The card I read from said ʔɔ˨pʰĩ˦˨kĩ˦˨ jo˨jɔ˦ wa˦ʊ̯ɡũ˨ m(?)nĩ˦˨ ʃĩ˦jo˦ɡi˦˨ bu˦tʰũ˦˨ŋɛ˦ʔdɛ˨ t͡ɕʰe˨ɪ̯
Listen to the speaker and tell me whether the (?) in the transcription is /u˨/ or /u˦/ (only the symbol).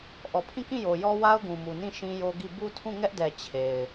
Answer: u˨